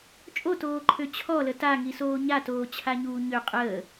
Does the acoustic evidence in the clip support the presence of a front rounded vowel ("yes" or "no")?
yes